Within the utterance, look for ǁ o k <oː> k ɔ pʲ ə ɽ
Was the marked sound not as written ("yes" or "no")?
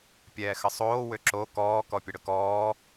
yes